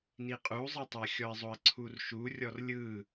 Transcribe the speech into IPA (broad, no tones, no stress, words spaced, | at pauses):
niqʼuzˤitˤa xʲɔɪ̯zˤoə̯ǀʰurʃu rʲɔrlʲɯ